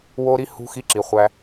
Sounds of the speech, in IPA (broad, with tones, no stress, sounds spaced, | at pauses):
w o˦ ɾ i˦ h ṳ˦ x i˦ ǁ i˨˦ χʷ æ˦